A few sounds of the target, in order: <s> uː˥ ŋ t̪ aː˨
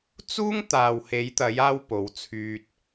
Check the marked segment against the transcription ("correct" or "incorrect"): incorrect